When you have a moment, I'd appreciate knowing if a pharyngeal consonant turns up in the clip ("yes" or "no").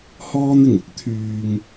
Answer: no